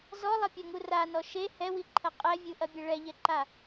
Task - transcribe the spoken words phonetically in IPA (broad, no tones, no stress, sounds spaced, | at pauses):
z ɔ lˠ ɐ pʲ ɔ ŋ u r a n ɔ ʃ e h ɛ w i ǃʰ ɐ qʼ ɛ vʲ u ʔ ɐ bʲ ɘ ɭ ɛ ʎ ɛ ǃ a